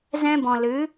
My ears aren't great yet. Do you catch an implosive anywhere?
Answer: no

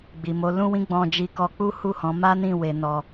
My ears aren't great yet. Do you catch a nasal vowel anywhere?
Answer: yes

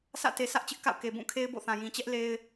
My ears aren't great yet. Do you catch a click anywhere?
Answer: no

